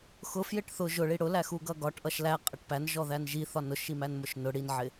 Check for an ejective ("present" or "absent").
present